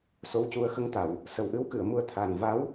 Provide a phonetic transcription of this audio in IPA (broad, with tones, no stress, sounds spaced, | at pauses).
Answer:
s o˧˥ w c u˧ ə̯ x ə˧˥ ŋ t̪ a˨˩˨ w | s ə˨˩ w ʔ ɨ˧˥ w k ɨ˨˩˨ ə̯ m u˧ ə̯ t̪ʰ a˨˩ n v a˧˥ w